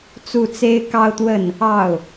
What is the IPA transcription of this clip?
t͡su˥˩t͡se˥ɪ̯kɑ˥ʊ̯t̪wə˥˩n | ɑ˥˩ʊ̯

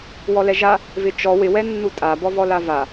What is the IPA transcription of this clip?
wɔlɛʒa | vɪt͡ʃɔ wɪ wɛnːutʼa bɔvɔlava

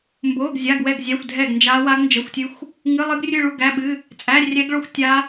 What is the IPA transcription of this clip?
mbo˧˥˧ɡzʲa˧˥˧ɡwɛ˥˧ɡzʲæ˧˥˧xʷ dʱɛ˥˧ɡnd͡ʒa˦˥ wa˦˥ɡnd͡ʒə˧˥˧xʷtʲɨ˦˥xʷ | ŋɨ˧˥˧lˠɨ˦˥ɡrʲɨ˥˧ɭu˥˧ ɡæ˧˥˧ɓɨ˧˥˧ | t͡sʼæ˧˥˧rʲɛ˦˥ɡɭo˥˧xʷ tʲa˦˥

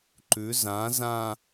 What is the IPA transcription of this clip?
ǃʉ zã zã

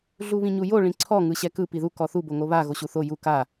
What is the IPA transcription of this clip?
ɮuβĩɲujo ɭĩǀʰɔ ŋɯɕɛkɯ piðu kɔθu boŋoβa ɣoɕuθo ju ka

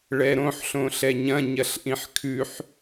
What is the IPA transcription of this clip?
ɭɛɾõħɬõ ɬɛɲɐ̃ ɲɐɬʔĩħkʰʉħ

